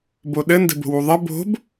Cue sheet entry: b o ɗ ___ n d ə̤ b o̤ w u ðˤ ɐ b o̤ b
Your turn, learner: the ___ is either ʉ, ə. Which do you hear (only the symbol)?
ə